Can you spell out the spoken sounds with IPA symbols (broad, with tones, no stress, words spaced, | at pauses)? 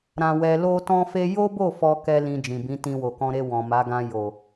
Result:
ɾã˧wɛ˧ lo˦tɔ̃˦fe˦ jo˦bo˦˨ fɔ˧kɛ˧ lĩ˧d͡ʒĩ˨bĩ˨˦tĩ˧ wo˨kɔ̃˧ɾe˧ wɔ̃˨ma˨˦ ɡã˧jo˨